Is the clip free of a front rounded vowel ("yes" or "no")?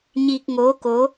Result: yes